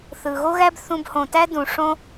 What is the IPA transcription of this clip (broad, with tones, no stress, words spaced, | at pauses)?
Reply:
θɯ˩ɣo˥ɣæ˥b θũ˧bhõ˩tæ˥ dũ˩ ʂõ˥